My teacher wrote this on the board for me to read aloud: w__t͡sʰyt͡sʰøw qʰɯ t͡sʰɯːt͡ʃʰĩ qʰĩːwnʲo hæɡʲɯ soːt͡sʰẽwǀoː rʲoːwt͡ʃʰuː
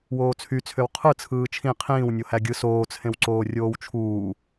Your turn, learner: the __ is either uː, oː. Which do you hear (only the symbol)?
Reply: oː